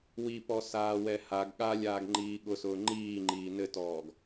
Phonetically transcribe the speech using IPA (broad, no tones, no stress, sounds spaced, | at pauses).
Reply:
w i p ɔ s aː w ɛ h a ɡ ɠ a lʲ aː ɡ ŋ͡ǃ iː ɠ ʊ s ʊː ŋ͡ǃ iː ŋ͡ǃ iː n ɘ t ɔː ɡ